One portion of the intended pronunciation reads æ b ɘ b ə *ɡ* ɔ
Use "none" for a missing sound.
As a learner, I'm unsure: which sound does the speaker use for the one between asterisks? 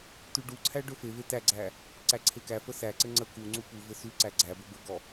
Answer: ɡ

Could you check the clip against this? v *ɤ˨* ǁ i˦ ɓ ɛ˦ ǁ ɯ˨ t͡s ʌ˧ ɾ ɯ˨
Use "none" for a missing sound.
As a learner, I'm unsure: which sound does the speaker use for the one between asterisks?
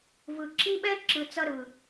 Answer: ɯ˨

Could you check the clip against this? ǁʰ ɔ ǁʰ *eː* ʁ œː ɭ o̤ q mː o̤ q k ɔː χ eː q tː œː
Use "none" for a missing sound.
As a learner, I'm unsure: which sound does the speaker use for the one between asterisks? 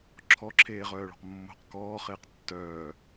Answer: eː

